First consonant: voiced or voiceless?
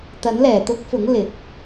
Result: voiceless